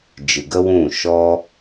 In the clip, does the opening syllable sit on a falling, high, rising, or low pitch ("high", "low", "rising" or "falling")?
low